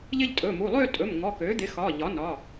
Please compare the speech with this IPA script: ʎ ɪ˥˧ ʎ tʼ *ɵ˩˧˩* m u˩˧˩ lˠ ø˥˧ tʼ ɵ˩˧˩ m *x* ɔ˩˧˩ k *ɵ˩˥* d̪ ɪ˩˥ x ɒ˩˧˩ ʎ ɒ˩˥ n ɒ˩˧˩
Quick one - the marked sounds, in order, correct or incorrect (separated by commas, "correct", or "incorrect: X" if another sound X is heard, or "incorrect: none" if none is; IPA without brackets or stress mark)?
correct, incorrect: ŋ, incorrect: ø˩˥